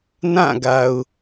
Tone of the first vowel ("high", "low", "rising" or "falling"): falling